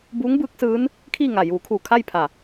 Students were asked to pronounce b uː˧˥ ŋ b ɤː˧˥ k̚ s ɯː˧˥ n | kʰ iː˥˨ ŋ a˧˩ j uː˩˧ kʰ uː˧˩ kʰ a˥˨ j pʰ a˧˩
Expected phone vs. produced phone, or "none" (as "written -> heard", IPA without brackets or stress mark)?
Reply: ɤː˧˥ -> ɯː˧˥